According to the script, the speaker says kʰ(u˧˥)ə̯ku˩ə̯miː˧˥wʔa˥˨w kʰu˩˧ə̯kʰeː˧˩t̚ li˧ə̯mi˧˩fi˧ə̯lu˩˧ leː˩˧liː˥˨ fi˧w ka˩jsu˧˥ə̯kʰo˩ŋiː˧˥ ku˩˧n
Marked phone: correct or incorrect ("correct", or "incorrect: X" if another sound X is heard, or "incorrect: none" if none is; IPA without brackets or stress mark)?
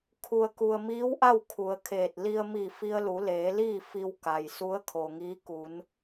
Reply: incorrect: u˩